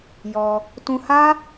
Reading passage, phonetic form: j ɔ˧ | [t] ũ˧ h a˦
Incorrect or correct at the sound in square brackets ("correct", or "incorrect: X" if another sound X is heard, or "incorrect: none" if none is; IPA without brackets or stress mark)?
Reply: correct